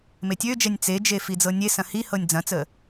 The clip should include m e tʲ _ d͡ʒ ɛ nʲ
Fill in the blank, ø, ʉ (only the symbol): ø